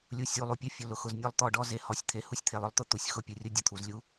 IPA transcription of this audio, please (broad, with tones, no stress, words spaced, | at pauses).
lʲu˨ sʲu˨lˠu˨pʲʊ˦ fʲʊ˨lʊ˨xʊ˨znʲɔ˦lˠ t̪ɔ˦˨ɖɔ˦ ze˨hɔ˨sʲt̪ʰe˨ hu˦sʲt̪ʰe˨lˠʊ˦lˠt̪ʊ˦ t̪u˨sʲ xʊ˦˨pʲu˨rʲʊ˦ dʲʊ˨t̪ʰu˨zlʲu˦